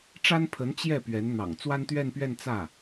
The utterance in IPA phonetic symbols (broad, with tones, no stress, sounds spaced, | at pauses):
ʈ͡ʂ a˥ n pʰ ə˧˥ n t͡ɕ j ɛ˥˩ p ɥ ɛ˧˥ n n̪ ɑ̰˨˩ ŋ t͡s w a˥ n t̪ ɥ ɛ˥˧ n p ɥ ɛ˥˧ n t͡s ä˥˩